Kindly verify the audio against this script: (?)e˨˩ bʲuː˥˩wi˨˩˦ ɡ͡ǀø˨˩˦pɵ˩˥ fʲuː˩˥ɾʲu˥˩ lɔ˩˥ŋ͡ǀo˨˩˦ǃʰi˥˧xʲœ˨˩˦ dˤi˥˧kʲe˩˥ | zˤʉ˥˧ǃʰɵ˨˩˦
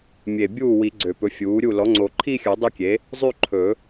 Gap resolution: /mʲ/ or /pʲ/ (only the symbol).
mʲ